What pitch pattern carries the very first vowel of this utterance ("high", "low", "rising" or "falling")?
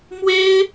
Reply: high